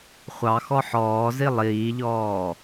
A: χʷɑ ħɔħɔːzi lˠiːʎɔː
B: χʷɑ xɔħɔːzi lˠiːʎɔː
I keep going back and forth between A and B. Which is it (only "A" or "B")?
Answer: B